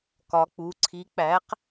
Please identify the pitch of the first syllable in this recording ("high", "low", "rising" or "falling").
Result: rising